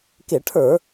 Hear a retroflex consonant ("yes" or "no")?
yes